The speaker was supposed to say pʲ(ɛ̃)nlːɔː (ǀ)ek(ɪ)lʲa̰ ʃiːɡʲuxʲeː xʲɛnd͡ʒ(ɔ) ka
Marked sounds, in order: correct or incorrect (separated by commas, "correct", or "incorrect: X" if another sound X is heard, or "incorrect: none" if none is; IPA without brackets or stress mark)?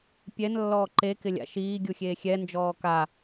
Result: incorrect: ɛ, incorrect: ǃ, correct, incorrect: ɔː